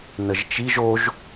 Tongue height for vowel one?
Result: mid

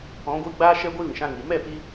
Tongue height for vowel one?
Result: mid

